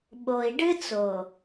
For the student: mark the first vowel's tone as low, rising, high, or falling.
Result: low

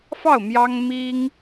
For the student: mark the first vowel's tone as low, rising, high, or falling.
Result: falling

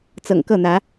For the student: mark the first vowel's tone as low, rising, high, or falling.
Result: low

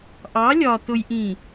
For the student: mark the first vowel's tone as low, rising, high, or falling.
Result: rising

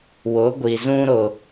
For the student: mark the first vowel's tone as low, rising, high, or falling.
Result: rising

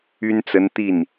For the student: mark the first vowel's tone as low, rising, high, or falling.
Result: high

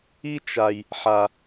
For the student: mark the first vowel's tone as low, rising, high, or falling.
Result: high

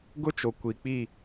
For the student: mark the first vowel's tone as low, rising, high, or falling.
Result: high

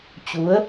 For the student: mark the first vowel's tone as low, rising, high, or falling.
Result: rising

